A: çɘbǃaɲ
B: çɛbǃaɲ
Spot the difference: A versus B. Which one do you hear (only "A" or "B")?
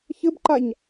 A